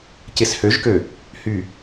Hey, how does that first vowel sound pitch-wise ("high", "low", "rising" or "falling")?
low